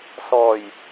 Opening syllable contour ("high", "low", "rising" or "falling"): low